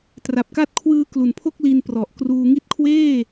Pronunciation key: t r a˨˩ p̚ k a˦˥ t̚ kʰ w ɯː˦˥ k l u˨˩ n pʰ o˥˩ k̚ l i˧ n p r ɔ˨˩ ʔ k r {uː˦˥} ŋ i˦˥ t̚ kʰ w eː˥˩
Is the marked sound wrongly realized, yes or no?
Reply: yes